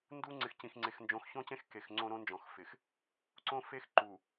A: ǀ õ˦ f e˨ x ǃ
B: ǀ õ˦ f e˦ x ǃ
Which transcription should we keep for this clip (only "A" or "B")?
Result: B